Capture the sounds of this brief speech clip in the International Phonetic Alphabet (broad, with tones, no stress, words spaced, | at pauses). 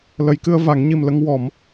lə˨˩˦jkɨ˧ə̯va˨˩˦ŋ ɲi˨˩mlə˧ŋ wɔ˨˩˦m